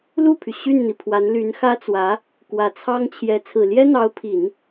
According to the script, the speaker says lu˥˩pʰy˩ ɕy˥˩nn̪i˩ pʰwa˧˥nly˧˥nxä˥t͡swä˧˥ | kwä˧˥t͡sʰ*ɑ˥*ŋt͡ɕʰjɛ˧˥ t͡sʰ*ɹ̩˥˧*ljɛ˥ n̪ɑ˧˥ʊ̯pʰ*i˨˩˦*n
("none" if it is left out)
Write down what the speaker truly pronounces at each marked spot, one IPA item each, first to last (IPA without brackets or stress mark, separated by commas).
ɑ˥, ɹ̩˨˩, i˨˩˦